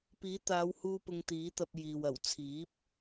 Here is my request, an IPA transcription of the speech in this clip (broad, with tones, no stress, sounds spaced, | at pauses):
p iː˨˥ t̪ aː˨˧ w h uː˧ p ʊ˧ ŋ t̪ iː˨˥ t̪ ɐ˧ p̚ j iː˨ w ɐ˨˩ w t͡sʰ iː˨˥ p̚